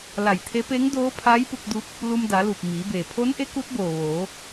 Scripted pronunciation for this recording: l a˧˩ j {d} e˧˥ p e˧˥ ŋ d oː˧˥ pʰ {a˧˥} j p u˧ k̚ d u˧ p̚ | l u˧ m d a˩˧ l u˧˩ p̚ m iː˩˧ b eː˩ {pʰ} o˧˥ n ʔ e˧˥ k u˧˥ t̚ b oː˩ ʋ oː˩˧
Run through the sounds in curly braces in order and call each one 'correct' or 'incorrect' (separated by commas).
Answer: incorrect, correct, correct